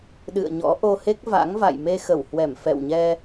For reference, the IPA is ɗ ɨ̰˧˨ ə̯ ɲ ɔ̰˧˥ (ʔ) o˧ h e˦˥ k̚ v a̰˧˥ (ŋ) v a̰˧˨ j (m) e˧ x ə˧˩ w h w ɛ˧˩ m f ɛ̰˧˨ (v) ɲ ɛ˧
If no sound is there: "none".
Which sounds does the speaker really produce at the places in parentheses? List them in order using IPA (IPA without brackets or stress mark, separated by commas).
ʔ, ŋ, m, w